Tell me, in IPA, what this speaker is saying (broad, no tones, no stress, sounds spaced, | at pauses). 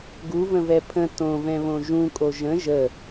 ɡ u v ə̃ v ɛ pʰ ə̃ t õ v ɛ̃ β õ ʒ ũ kʼ o ʒ ə̃ ʒ ə